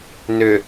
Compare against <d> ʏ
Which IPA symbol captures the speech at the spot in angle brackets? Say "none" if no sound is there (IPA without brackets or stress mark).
n